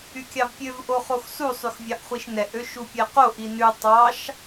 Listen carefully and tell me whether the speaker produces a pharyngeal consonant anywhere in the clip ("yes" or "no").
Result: no